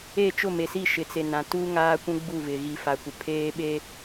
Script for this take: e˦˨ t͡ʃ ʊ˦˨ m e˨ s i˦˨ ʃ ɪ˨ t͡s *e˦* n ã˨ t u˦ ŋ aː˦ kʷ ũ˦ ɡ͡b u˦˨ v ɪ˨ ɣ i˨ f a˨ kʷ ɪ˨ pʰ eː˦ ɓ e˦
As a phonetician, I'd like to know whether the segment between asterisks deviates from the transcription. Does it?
yes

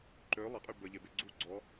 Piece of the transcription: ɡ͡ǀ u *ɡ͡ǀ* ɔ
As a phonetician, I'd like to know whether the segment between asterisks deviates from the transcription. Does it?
no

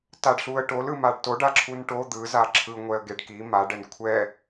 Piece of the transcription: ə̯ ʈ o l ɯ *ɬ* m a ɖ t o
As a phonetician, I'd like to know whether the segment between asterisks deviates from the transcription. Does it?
yes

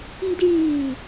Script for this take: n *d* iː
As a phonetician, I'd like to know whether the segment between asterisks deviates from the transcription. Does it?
no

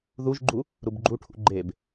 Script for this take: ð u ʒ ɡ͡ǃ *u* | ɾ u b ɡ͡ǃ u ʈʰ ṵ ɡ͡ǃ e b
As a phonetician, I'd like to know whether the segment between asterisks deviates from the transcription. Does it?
no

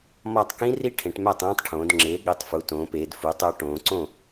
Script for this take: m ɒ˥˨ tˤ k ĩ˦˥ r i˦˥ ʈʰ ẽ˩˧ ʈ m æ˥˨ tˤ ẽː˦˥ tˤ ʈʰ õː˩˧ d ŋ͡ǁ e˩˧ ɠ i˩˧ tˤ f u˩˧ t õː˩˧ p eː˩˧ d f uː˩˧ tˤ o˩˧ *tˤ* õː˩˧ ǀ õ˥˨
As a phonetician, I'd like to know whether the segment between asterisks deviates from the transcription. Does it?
yes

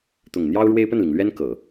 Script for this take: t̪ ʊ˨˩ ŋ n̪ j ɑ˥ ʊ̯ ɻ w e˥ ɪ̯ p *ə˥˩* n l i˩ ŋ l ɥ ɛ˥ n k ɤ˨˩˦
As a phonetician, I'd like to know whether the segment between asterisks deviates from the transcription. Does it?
no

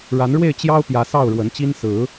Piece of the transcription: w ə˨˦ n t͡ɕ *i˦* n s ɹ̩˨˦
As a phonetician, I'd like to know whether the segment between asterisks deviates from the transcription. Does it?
no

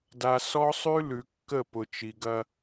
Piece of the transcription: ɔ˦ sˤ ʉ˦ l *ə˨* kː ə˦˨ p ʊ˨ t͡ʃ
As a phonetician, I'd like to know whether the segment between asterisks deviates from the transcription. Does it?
yes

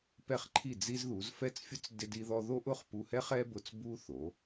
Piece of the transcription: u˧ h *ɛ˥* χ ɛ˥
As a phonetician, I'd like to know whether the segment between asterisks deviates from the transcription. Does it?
no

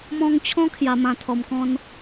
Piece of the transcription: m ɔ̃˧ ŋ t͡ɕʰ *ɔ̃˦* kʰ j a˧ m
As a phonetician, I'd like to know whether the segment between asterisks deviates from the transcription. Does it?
no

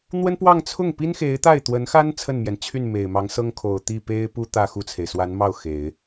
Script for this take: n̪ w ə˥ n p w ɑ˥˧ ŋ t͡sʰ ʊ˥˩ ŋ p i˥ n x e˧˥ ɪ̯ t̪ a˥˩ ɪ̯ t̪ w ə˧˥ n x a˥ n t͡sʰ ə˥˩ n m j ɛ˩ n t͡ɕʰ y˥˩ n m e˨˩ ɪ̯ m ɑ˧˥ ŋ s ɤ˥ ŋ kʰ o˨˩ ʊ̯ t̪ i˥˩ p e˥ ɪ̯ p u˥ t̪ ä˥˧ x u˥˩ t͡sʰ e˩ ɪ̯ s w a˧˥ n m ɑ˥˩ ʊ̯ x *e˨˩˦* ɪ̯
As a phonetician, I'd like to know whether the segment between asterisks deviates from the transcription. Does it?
no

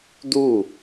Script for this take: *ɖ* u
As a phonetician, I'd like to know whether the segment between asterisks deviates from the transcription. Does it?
yes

